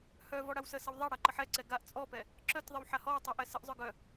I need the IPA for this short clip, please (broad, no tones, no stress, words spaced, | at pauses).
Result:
hœvɔ ɽawsəsəw ðˤaɽa ǃəħɛǀɛ ɡaʔ t͡sʼɔpɛ | ǁœtðˤəw ħahɔwtˤu ʔɛsəʔzˤœ ɡœ